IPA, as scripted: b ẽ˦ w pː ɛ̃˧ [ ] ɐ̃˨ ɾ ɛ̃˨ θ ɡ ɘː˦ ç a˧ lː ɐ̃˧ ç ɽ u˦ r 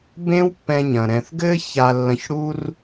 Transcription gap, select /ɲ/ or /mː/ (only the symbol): ɲ